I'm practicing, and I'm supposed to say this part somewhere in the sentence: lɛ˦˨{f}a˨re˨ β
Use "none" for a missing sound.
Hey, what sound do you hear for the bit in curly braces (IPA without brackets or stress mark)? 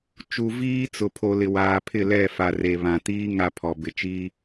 f